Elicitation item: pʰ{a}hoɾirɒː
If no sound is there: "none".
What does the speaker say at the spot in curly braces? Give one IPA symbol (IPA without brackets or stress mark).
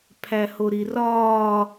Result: æ